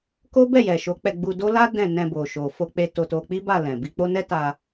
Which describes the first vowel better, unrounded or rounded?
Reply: rounded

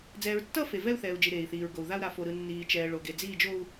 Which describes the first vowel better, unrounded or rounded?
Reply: unrounded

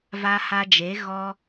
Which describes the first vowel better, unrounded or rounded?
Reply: unrounded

